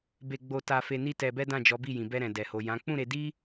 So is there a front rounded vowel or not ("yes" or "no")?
no